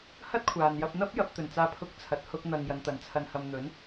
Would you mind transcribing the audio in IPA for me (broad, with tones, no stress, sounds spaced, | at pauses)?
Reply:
h ɐ˥ t̚ kʷʰ aː˨ n j ɐ˧ p̚ n̪ ɐ˥ p̚ j ɐ˨˥ p̚ t̪ ɵ˨˩ n t͡s aː˧ pʰ ʊ˥ k̚ t͡sʰ ɐ˧ t̚ h ʊ˧ k̚ n̪ ɐ˨ ŋ j ɐ˨˧ n t̪ ɐ˨˥ n t͡sʰ ɐ˧ n h ɐ˧ m n̪ ɵ˨˥ n